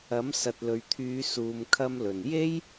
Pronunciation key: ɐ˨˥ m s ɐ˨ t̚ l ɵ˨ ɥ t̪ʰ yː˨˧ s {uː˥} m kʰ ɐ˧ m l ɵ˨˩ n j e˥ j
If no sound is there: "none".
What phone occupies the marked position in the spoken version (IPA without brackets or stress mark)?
uː˨